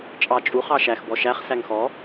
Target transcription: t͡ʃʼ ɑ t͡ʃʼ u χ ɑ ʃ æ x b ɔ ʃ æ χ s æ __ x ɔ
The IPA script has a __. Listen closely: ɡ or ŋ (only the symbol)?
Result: ŋ